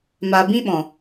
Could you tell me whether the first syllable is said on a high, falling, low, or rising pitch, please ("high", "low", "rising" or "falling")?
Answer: low